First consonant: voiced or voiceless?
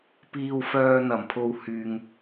voiceless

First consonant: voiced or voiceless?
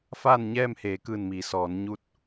voiceless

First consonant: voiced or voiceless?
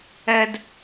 voiced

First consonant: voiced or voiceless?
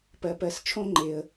voiceless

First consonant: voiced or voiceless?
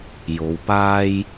voiced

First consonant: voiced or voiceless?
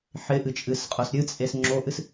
voiceless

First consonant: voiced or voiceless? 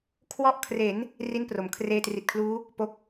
voiceless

